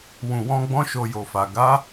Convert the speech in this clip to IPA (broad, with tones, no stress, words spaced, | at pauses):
wũ˨wɔ̃˧ ɡ͡bɔ̃˦ʃo˧jo˨fa˨ ɡa˨˦